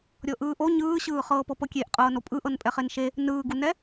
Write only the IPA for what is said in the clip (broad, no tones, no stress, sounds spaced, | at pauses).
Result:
ɾʲ ɤ ʔ ɯː ʔ o ɲ ɯː ɕ ɯː χ ɤː p ɤ p ɤ kʲ e ʔ qʼ ɤː n o pʼ ɯ ʔ ɤ n pʼ ɛ χ e n ʃ e | n ɯː ɡ u n ɛ